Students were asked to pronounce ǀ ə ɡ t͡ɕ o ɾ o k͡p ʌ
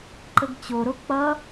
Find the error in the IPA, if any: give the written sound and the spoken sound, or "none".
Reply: ǀ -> ǃ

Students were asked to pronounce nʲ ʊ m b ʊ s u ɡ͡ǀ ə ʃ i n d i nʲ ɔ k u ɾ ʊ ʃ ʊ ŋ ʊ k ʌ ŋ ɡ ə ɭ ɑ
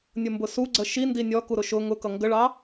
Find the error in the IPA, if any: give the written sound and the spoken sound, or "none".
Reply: none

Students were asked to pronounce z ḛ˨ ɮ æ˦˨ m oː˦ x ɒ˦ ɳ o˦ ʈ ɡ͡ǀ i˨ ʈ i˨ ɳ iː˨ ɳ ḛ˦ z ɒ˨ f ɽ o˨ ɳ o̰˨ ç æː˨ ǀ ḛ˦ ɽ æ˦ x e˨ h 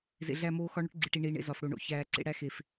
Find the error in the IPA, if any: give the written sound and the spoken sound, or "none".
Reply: h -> f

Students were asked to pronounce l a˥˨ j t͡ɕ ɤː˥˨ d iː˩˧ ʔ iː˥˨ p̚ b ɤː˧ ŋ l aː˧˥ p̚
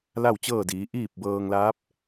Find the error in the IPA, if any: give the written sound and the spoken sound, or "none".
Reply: j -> w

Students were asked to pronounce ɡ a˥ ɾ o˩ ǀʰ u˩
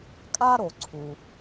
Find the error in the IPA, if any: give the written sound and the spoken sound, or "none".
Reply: ɡ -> kʼ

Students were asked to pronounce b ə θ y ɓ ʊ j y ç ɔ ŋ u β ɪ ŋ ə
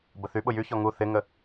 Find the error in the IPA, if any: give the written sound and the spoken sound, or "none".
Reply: β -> θ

